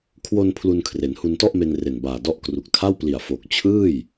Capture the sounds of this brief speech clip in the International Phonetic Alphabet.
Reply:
kʰ w o˧ n pʰ l u˧ n kʰ r e˩˦ n h u˧ n t ɔ˥˩ ʔ m e˧ n r e˨˩ n b aː˨˩ d ɔ˥˩ ʔ k r u˨˩ k̚ tʰ a˥˩ w p l i˨˩ a̯ f oː˨˩ k̚ t͡ɕʰ ɯː˥˩ j

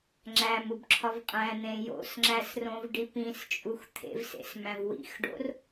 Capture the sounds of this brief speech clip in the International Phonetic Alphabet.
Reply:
ŋ͡ǁ æ m u b ǁʰ ɒ v qʼ æ̃ n̪ ẽ j o̰ s ŋ͡ǁ æ s r õ v ɖ i p ĩ s t͡ʃʼ u x t̪ʰ ḛ v s ḛ s m æ̃ v w ḭ x ɖ o̰ r

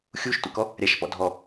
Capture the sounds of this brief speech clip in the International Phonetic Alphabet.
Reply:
xʲ u ʃ tʷ ɛ̰ k ɔ | ɾʲ a ʃ p ɔ̰ dʱ ɔ

